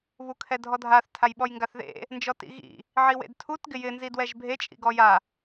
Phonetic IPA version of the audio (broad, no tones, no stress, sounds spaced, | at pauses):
β u kʰ ɛ dʱ ɔ dʱ a θ tʰ a j ɓ ɔ j ŋ ɡ a θ ð ḛ | n d͡ʒ ɔ t ḭ ɣ ḭ | ʕ i w ḛ d tʰ u t ɡ ɪ j ɪ n z i d w ɛ ʒ bʱ e t͡ʃʼ ḭ ɡ ɔ j a